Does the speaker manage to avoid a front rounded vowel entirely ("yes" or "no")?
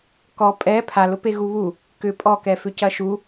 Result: no